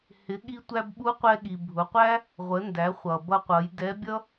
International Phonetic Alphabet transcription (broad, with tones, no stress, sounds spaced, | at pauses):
h ɪ˩˧ ɠ i˧ tʷ æ˧ b ɓ u˧˥ qʷ ɛ˧ ɠ i˩ bʱ ʊ˩˧ qʷ æ˥ | ʁʷ ə˩˧ n d æ˩˧ χʷ ʌ˩ b ʌ˧ qʷ ʌ˩˧ j d ɛ˧˥ bʲ ʌ˥